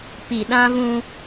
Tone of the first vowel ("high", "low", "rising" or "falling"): low